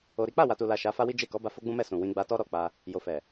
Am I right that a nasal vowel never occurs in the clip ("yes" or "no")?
no